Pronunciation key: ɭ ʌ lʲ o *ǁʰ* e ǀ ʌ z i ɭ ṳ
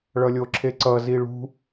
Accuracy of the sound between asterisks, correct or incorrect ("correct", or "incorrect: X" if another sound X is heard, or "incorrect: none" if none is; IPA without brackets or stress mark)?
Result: correct